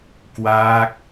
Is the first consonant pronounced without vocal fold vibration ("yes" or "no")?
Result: yes